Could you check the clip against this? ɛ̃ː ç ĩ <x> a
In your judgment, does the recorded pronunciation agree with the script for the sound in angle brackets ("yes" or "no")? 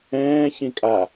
no